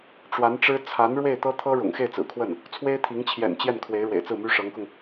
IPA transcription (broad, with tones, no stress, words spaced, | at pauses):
ʈ͡ʂwa˧˥nʈ͡ʂɻ̩˥ t͡sʰa˧˥n ɻwe˥˩ɪ̯t̪ɤ˥ t̪ʰɤ˥ ɻʊ̰˨˩ŋxe˥˩ɪ̯t͡sɹ̩˨˩kʰwə˥˩n | t͡sʰwe˥ɪ̯t̪ʰi˧˥ŋ t͡ɕʰjɛ̰˨˩n t͡ɕjɛ˥˩n kʰwe˧˥ɪ̯ɻwḛ˨˩ɪ̯t͡sɹ̩˥˩my˥ ʂɤ˧˥ŋkʊ˧ŋ